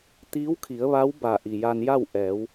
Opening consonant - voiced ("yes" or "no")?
no